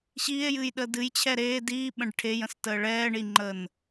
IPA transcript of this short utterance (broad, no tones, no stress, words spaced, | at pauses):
ɕiːe̯jɨːjɗəː dɨjt͡ɕʰɛ ɾeː diːɓə̃ɖ ʈʰejə̃stəː ɭɛːɳiŋ͡ǃəːn